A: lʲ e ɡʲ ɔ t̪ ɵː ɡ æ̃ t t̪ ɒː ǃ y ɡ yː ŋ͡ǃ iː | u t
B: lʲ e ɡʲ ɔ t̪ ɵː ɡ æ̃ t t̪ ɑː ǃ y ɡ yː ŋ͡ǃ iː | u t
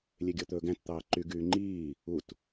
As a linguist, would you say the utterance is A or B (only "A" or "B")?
B